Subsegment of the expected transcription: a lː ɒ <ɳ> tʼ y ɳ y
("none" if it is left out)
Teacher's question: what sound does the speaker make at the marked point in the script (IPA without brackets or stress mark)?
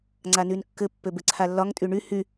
ŋ